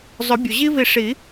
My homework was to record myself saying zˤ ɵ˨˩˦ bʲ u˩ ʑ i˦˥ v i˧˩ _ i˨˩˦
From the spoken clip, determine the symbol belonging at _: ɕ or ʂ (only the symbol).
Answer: ʂ